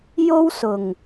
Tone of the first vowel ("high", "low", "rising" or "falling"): high